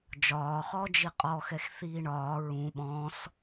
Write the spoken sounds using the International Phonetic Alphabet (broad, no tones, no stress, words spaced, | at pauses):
d͡ʒɒːχɔː d͡ʒiqʼɔxɛx θiːɳɒː ɹũ ɓɔ̃s